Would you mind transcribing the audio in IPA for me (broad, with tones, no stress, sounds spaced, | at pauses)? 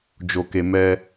d͡ʒ o˧ k e˧ m ɛ˧